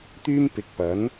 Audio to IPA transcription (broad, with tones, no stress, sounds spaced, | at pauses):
t̪ yː˥ m p ɪ˨˥ k̚ p ɐ˨˥ n